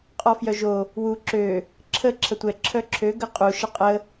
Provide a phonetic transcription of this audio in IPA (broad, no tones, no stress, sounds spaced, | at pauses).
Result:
qʼ ɔ f j œ ʒ o | w u ǁ ø | ǁʰ ə ǁʰ ə tʷ ɛ ǁʰ œ ǁʰ ø ɡ ə qʼ u ʃ ə qʼ ə